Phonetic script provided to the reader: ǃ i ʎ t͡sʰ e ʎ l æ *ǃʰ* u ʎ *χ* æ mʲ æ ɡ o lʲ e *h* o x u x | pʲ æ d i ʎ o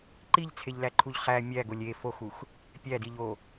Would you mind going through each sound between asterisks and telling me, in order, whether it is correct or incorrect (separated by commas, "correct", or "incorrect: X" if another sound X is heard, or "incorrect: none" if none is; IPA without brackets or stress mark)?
correct, correct, incorrect: f